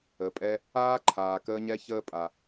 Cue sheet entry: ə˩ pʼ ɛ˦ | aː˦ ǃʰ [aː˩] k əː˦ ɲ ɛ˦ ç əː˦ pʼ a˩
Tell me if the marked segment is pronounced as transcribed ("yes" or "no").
yes